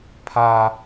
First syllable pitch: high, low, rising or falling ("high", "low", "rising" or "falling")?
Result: high